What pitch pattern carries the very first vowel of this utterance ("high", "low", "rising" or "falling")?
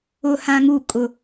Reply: high